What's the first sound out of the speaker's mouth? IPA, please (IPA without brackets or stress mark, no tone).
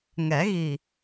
ŋ